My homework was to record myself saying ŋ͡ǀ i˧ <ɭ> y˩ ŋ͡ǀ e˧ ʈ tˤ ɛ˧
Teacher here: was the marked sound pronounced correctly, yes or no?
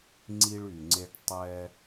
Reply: yes